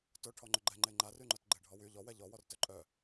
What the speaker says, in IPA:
t ʊ ʈʰ ɔ ŋ͡ǃ ʏ ɡ͡ǃ ɛ ŋ͡ǃ e ŋ͡ǃ a r y ŋ͡ǃ œ t ɡ͡ǃ e ɖʱ ɔ w y ʎ ɔ w ɛ ʎ ɔ w ɔ r t œ ǃʼ œ

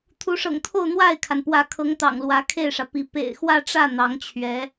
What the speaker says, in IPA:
t̪ʰ u˧˥ ʂ ɤ̰˨˩ ŋ t̪ʰ o˥˧ ʊ̯ n̪ w a˥˩ ɪ̯ kʰ a˩ n p w ä˧˥ kʰ ɤ˧˥ ŋ t̪ ɑ̰˨˩ ŋ l w ä˧˥ kʰ e˥˩ ɪ̯ ʂ ä˩ p i˧˥ p ḛ˨˩ ɪ̯ x w ä˥˧ ʈ͡ʂ ä˥˩ n̪ ɑ˧˥ ŋ t͡ɕʰ ɥ ɛ˧˥

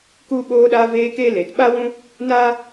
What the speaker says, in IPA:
k u˦ ɓ oː˧ ɗ aː˧ v eː˧ k e˦ l e˨ t ɓ a˦ w ũ˦ | n aː˦

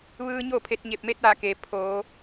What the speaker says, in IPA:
ʋ ɯː˧ ɲ o˥˨ pʰ e˧ t̚ ɲ e˧˩ p̚ m e˧ t̚ ʋ a˧˩ k eː˩ pʰ oː˩˧

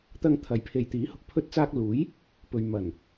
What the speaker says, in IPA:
t̪ ɐ˧ ŋ t̪ʰ ɐ˨˥ j pʰ e˨ j t̪ iː˨˥ h ʊ˨ k̚ pʰ ɵ˧ t̚ t͡s aː˧ k̚ l uː˨˥ j | p ɵ˨ ɥ m ɐ˨˩ n

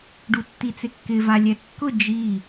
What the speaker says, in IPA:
ɖ u tː i t͡s e kː ɪ v a lʲ ɛ kː ʊ d͡ʒ i

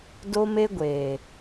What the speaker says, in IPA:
d o˦ m e˦ ɡʷ eː˨

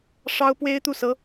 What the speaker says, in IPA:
ʂ ɑ˥ ʊ̯ p w e˥ ɪ̯ t̪ u˥˩ s ɤ˥

